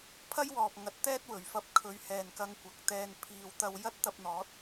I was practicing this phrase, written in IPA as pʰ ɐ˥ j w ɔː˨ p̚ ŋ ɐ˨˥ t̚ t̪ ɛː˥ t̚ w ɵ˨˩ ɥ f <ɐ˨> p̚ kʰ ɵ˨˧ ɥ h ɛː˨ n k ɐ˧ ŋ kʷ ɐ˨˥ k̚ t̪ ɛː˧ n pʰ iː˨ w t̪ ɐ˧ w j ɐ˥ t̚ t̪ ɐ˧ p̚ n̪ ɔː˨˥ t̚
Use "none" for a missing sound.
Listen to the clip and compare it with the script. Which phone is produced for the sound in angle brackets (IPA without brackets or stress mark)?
ɐ˧